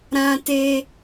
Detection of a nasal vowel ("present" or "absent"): present